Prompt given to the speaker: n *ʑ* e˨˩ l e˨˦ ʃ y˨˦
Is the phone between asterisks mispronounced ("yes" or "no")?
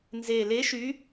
yes